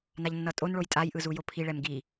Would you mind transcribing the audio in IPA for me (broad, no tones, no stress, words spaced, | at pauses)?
naʎnːʌtʼonɭoj tʼaj ʔɯzujopʰi ɭɛmɡi